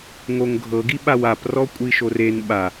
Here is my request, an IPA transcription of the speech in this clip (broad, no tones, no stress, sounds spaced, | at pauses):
ŋ o ŋ ɡʱ ɤ ɡ i ɓ a w a p r ɔ kʷʼ i ʃ o r e n ɓ a